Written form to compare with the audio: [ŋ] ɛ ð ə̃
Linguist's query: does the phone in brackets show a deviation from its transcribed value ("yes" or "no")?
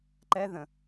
yes